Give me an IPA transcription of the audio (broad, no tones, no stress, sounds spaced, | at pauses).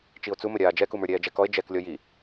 t͡ʃ i o̯ t͡s u m ə ɾʲ aː d͡ʒ ɛ k u m ə˞ ɾʲ ɛː d͡ʒ ɛ k ɔ e̯ d͡ʒ ɛ k lʲ ɔ j i